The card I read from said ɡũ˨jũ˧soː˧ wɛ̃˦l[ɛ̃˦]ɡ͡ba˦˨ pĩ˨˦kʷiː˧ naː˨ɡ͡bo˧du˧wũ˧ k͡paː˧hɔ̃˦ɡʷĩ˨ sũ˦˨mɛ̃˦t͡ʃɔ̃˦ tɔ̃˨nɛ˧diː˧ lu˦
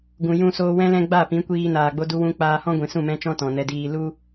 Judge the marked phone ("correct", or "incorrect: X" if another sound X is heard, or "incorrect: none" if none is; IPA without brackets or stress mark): correct